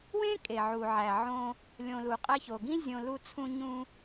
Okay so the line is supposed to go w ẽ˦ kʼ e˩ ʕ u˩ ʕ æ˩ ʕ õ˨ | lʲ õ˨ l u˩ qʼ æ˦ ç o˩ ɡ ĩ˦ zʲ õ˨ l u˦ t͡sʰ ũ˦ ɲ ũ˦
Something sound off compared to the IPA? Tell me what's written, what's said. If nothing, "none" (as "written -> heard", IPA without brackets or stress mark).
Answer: none